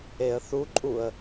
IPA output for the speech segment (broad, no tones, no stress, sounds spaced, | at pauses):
e ə̯ θ u ǃʼ u ə̯